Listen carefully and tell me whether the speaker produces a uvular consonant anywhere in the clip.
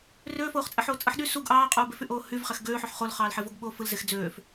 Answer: yes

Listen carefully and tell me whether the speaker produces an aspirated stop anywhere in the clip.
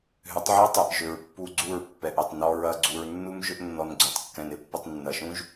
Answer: no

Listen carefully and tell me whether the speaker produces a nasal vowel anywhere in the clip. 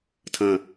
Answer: yes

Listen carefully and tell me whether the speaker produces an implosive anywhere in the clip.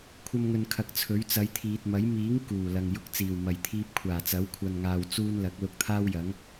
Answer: no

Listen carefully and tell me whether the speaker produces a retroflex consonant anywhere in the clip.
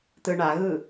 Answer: yes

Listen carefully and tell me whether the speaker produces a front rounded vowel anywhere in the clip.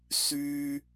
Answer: yes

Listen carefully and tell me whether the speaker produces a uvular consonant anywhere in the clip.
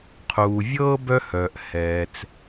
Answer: yes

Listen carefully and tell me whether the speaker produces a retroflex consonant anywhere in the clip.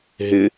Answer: no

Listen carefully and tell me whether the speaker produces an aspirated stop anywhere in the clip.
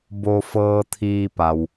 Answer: yes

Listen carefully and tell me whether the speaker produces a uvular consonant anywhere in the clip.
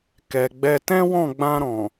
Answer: no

